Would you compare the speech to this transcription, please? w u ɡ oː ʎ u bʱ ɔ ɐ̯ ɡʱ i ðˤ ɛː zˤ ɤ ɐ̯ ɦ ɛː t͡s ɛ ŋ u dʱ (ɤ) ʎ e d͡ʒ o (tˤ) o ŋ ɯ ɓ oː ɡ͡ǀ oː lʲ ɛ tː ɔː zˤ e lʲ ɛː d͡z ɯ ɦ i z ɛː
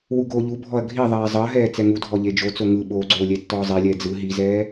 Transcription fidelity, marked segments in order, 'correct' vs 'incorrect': incorrect: ɔ, incorrect: t͡s

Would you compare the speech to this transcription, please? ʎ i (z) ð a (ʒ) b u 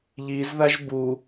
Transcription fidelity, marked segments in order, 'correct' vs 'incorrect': correct, correct

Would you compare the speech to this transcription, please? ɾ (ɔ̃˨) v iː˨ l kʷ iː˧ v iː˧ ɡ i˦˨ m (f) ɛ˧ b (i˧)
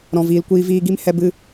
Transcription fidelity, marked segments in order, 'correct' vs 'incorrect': correct, incorrect: h, incorrect: ɨ˧

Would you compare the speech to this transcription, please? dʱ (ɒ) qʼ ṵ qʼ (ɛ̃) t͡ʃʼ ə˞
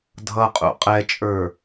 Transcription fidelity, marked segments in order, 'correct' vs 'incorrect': incorrect: ʌ, incorrect: ɛ

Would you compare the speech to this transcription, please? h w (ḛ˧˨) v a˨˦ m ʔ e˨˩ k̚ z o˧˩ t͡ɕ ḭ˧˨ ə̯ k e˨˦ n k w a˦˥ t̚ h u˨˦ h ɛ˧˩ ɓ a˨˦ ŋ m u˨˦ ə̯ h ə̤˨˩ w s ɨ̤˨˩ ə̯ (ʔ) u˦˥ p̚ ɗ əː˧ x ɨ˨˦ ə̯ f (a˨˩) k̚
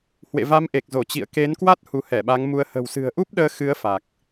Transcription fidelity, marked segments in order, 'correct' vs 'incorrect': correct, correct, correct

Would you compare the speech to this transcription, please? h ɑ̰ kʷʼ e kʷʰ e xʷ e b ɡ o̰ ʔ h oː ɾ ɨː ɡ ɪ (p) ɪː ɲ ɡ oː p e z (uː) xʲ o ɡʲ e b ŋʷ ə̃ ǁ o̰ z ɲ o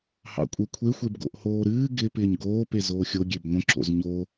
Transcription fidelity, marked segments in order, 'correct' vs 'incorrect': correct, incorrect: oː

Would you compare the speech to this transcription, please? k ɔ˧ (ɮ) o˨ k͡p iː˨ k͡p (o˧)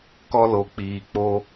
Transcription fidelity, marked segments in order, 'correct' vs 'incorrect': incorrect: l, correct

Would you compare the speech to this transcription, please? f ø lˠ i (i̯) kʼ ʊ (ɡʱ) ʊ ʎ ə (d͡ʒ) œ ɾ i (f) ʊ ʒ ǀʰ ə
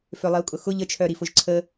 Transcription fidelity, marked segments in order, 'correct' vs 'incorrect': incorrect: u̯, incorrect: x, incorrect: t͡ʃʰ, correct

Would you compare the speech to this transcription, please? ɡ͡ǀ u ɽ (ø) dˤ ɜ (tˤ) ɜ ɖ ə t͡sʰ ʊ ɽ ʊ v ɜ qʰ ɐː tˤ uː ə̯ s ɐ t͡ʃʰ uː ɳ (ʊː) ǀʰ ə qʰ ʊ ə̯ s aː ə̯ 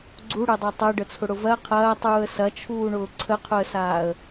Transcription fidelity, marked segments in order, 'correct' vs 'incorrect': correct, correct, correct

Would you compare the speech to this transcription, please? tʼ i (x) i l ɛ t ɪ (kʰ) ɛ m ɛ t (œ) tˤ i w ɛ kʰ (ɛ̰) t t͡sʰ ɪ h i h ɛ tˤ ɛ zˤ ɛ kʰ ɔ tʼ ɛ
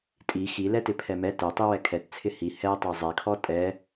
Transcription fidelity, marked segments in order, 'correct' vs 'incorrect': correct, incorrect: pʰ, incorrect: ɛ, incorrect: ɛ

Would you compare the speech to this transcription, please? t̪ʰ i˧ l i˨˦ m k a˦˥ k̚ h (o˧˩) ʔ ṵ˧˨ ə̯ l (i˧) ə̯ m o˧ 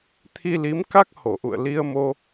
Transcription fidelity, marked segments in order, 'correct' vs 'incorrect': correct, correct

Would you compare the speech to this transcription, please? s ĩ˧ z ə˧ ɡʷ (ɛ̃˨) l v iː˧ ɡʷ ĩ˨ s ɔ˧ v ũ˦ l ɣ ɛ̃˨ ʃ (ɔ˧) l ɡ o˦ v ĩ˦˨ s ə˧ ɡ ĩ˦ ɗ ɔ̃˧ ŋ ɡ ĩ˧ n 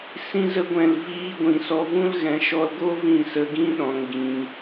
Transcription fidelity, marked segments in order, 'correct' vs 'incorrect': correct, correct

